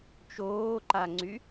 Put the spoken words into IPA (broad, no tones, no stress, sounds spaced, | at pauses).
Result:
t͡ʃ oː ǃ a ŋ͡ǀ y